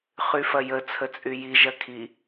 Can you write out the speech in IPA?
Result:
χyfɐjə t͡sʰət͡sʼyji ʒɐkʰi

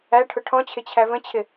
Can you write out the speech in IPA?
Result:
æʈʰʊ ʈʰɔ̃t͡ɕʰɪ t͡ɕʰævə̃t͡ɕʰɪ

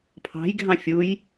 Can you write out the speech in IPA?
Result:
pʰɑ̤jɡʱɑ̃ fʲuj

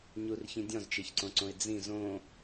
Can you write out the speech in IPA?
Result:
ɲurçĩ dʲɔ̃zt͡ʃeçǀõǀõɪ̯ d͡zĩ zõ

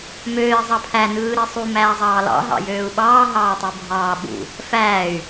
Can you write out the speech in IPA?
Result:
møːi̯ zˤɑpʰæ nɯːɾisˤu mæːzˤɑːlɑ̰ ɦɑ̰jøːu̯ɓɑː ɦɑːtˤubʱɑː ɓṵ | fæːy̯

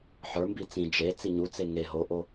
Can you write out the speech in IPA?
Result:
ħə˞mbi t͡sĩ d͡ʒe t͡siɲut͡se ŋe ɦoʔo

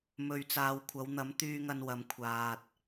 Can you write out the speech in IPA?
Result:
mɵ˨ɥt͡saː˨wkʷʰɐ˨˧w n̪ɐ˨˥mt̪yː˧ŋɐ˧nwɐ˨˧m kʷʰaː˨t̚

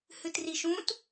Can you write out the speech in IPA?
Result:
hɨtriʃũt

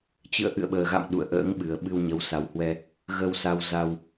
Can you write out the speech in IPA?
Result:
t͡ɕɨ̰˧˨ə̯ʔɨ̰˧˨ə̯ɓəː˨˩ɣa̰˧˨m ɗṵ˧˨ə̯ʔə̰ː˧˥ŋɓɨ˨˩ə̯ ɓɨ˧wɲə˨˦w sa˨˦whwɛ˧ | ɣə˧wsa˧wza˧w

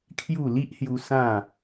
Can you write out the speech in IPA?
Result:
kʰju˥˧ li˦ʔhju˧ sã˥˧

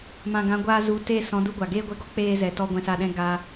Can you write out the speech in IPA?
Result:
mã˨ɡã˨˦ɡʷaː˧ zu˨˦te˦˨ sɔ̃˨˦du˧ɡʷa˨ ɡeː˧ɡʷɛ˧ɡɔ˦ k͡peː˧zɛ˨tɔ˧ ɡʷɛ̃˧sa˦˨ɗɛ̃˦ ɡaː˧

